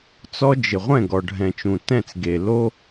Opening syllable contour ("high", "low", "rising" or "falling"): high